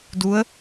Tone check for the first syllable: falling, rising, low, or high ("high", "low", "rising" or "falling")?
rising